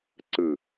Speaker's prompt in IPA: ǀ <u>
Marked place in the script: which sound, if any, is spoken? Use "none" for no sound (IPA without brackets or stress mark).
ɯ